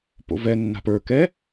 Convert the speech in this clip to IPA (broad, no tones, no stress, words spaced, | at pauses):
po̰vɛnːa̤p ə˞ kɛ